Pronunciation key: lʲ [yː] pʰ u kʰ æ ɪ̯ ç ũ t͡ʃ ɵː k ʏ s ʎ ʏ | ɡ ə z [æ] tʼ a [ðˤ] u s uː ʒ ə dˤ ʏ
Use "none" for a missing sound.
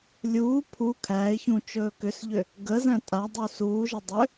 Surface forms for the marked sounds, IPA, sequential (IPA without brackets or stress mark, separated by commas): uː, æ̃, dˤ